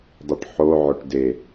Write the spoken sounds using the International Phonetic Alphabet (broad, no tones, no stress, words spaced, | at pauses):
dˤɨʈħoʕoʈ de